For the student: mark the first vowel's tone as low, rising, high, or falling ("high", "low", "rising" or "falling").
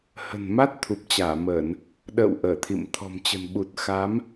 low